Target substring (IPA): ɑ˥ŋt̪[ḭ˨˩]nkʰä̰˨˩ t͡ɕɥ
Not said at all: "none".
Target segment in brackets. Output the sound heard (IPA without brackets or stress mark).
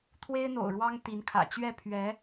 i˧˥